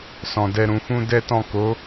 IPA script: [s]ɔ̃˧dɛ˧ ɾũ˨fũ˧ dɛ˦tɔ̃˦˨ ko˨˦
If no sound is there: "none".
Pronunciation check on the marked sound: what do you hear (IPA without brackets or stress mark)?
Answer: s